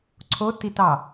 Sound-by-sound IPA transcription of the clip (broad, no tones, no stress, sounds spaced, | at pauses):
ǀʰ o t i t ɑ